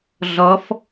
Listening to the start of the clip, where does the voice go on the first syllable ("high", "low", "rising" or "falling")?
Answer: rising